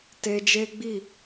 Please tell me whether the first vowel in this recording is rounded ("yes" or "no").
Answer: no